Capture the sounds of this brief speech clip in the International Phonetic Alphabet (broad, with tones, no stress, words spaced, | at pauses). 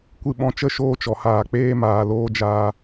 kʷɨ˧ɓɔ̃˧t͡ʃə˦˨ ʃoː˦t͡ʃɔ˨haː˨ k͡peː˧maː˨loː˧d͡ʒaː˧